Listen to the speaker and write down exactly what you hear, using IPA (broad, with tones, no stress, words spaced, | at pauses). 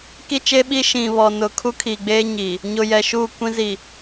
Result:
ki˦t͡ʃe˦ɓi˦ ʃĩ˨βɔ˨nʊ˨ kʰu˦kʰi˨ɡ͡beː˦ɲiː˨ | ɲʊ˨jɛ˨ʃu˦˨kʷĩ˦ zi˨